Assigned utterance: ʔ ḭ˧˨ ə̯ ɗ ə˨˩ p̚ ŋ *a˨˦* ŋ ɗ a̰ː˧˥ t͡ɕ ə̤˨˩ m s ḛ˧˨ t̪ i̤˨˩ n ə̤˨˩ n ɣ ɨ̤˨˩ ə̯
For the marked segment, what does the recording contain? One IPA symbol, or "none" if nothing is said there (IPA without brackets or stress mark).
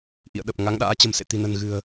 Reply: a˨˦